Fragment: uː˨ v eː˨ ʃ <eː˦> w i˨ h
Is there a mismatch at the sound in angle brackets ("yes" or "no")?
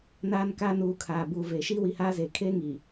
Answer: yes